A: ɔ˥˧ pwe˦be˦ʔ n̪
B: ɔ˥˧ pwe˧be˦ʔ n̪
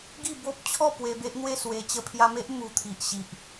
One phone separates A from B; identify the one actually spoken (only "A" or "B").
B